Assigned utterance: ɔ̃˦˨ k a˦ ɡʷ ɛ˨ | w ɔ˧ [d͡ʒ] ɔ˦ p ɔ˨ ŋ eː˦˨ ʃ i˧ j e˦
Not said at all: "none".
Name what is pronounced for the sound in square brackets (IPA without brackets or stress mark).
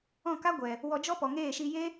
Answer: d͡ʒ